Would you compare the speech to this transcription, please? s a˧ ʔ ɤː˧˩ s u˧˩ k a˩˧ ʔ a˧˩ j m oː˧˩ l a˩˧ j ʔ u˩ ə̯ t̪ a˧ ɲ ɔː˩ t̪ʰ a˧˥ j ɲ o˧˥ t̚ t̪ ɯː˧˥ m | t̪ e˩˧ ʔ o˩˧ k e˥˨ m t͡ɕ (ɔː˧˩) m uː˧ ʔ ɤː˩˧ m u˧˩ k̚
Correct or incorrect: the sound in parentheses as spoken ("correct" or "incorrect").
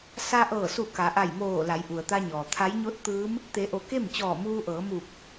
correct